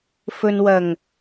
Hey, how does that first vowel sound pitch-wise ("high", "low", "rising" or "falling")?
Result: low